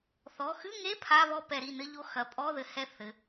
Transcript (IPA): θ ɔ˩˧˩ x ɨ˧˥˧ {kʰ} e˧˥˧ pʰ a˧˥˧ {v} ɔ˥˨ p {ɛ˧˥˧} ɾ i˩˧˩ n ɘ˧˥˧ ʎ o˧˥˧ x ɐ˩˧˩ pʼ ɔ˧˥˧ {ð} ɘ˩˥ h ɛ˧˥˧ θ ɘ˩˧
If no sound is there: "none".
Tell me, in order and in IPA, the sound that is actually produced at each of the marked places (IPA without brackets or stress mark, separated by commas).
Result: ŋ, β, ɛ˧˩˧, ð